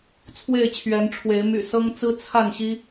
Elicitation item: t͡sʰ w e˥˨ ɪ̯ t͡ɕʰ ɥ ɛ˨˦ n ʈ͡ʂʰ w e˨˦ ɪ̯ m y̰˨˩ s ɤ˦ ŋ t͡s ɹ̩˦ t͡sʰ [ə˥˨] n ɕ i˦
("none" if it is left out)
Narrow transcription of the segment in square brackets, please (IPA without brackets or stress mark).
a˥˨